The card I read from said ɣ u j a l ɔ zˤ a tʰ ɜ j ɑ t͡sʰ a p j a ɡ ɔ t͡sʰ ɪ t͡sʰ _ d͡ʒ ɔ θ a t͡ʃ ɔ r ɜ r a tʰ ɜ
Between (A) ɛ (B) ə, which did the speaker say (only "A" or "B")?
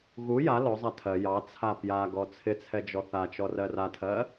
A